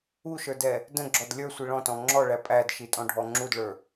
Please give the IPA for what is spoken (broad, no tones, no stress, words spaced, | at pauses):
uʃə˞dɛ | də̃ɡ͡ǁɔd lʲə˞sʷi ɭɔ̃tɔ̃ ŋ͡ǁɔɭæ pʼædʃitʼɔ̃ɖʱɔ ŋ͡ǁudɭə˞